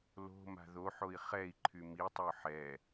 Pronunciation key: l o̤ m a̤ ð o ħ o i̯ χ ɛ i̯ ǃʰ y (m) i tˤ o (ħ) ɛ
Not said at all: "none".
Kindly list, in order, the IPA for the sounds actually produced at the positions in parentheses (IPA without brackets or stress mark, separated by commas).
m, ħ